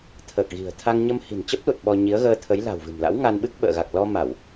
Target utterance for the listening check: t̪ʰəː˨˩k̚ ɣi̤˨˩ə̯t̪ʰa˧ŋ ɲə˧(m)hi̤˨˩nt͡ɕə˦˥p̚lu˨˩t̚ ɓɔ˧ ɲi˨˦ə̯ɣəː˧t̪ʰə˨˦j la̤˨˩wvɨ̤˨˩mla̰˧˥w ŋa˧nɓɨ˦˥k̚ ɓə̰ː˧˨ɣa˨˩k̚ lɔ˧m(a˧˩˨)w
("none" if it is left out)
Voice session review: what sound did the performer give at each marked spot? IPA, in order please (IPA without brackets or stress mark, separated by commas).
m, a˧˩˨